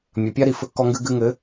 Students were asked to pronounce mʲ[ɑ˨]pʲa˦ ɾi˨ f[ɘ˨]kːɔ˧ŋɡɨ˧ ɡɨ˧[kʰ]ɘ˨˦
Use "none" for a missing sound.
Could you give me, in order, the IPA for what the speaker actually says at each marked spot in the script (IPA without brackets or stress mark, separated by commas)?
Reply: ɐ˨, ɘ˧, ŋ